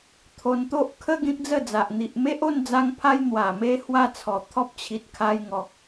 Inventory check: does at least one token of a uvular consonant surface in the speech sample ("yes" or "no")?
no